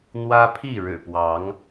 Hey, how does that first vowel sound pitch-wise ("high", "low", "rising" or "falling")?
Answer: high